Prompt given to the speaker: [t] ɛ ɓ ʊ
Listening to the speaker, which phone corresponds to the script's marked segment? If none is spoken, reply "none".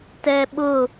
t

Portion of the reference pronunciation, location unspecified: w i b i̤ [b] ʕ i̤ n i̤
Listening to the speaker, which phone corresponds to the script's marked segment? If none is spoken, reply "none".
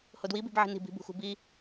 b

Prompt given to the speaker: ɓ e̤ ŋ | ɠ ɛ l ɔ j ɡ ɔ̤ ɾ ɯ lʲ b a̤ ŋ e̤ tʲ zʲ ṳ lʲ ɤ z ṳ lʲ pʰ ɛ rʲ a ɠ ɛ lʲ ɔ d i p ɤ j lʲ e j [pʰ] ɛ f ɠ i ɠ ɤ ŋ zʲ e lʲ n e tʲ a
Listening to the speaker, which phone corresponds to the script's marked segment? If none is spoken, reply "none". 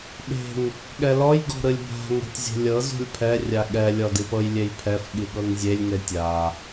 pʰ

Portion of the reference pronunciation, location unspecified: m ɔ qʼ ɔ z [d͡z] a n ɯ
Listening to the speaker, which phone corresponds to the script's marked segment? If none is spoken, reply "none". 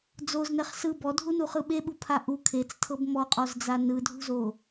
d͡z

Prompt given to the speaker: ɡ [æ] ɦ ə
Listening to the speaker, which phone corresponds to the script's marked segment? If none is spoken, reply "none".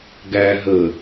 æ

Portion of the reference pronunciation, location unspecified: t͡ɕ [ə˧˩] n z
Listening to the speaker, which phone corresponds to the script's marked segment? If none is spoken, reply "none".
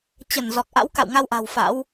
ə˧˩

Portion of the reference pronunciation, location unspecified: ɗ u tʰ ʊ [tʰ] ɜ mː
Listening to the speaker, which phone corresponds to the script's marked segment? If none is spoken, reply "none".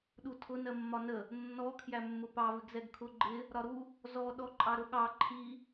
n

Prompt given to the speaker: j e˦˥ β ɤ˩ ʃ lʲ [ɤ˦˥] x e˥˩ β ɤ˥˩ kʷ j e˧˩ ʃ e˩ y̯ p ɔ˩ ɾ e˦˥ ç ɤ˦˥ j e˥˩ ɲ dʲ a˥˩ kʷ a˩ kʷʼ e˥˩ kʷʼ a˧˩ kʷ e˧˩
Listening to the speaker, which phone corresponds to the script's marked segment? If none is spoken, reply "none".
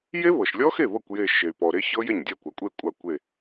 ɔ˦˥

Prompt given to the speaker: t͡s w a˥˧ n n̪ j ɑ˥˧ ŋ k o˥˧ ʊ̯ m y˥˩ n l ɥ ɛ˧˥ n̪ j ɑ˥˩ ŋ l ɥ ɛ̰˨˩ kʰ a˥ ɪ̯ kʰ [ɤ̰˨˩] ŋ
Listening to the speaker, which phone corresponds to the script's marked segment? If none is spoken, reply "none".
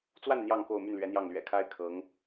ɤ˧˥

